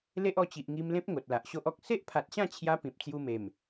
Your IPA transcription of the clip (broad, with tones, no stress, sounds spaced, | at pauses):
l e˦ ʔ ɔ˧ t͡ɕ i˨ ʔ ŋ i˧ m l ẽ˦ p̚ ŋ o˨ t̚ l a˨ ʔ ɕ o˦ ʔ ɔ˦ k̚ s e˦ ʔ pʰ a˨ t̚ ɕ ã˥˧ t͡ɕʰ j a˧ p ĩ˨ p̚ t͡s j u˧ m e˨˩ m